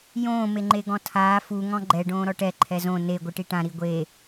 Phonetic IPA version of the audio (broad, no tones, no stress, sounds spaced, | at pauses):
j õː m e ŋ͡ǃ e ɡ ɔ̃ tʰ aː f u ŋ ɔ̃ ɡ͡ǃ ɛ ɖ õː ɾ ɔ ʈ ɛ ǃʰ ɛ z õ n e ɡʷ ɯ ʈ i ʈ ã ɾ i ɡʷ e